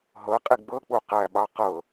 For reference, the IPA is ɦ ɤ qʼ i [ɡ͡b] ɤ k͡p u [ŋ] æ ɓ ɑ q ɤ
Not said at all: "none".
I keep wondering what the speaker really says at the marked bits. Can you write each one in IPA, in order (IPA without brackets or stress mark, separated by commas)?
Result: ɡ͡b, q